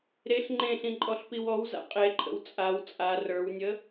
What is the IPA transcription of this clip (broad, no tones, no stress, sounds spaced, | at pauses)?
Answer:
ɾ e ɬ ŋ͡ǃ ẽ ɬ ĩ ǃʼ ɔ ɬ p i w ɔ w z a̰ qʼ e ǃʼ ə̰ w t͡sʼ a w t͡sʼ a r ə˞ w nʲ ə